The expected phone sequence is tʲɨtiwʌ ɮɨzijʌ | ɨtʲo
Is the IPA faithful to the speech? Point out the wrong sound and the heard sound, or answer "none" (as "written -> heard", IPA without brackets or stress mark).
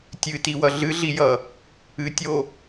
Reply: z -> ɮ